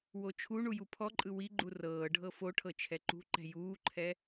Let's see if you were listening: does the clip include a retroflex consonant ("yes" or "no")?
yes